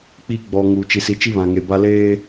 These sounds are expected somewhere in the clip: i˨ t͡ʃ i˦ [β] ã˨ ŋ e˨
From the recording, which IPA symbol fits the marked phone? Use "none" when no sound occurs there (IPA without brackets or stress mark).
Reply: β